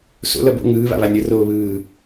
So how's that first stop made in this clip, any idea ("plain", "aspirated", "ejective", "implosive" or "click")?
plain